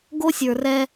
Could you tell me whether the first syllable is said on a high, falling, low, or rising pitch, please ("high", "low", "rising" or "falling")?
high